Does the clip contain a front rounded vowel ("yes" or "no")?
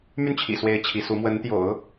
yes